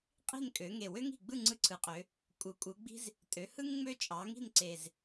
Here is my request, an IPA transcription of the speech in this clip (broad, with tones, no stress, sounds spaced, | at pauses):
qʼ i̤˦˨ n kʼ ø˩˧ ŋ e˨˩ w ø˦ ŋ i̤˨˩ ɡ͡b ɯ˦˨ ŋ͡ǀ ɯ˦ ǀʰ ɯ˩˧ qʼ ø˩˧ | kʼ u˩˧ kʼ u˩˧ ɡ͡b i̤˦ z | tʼ ø˩˧ h ɯ˦ ŋ ŋ͡m ø˦ t͡ʃʼ ɑ˩˧ ŋ i̤˦˨ n ǀ e˨˩ z